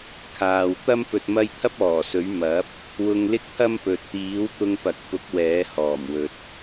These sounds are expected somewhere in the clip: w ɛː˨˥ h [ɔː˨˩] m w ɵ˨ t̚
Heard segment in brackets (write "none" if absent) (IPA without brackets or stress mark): ɔː˨˩